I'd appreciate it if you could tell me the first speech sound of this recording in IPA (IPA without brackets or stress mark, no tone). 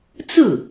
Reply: t͡s